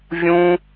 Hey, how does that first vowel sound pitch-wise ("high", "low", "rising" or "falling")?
high